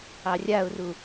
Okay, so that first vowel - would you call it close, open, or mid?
open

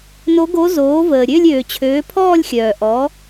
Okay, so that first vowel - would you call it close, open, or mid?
mid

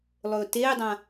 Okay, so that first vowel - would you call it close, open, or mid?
mid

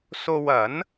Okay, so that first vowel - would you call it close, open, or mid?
mid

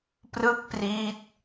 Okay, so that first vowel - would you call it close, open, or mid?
close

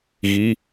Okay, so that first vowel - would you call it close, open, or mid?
close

